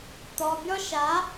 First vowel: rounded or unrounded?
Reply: rounded